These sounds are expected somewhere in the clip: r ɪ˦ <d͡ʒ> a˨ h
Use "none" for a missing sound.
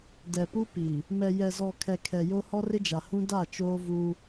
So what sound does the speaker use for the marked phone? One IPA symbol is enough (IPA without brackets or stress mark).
d͡ʒ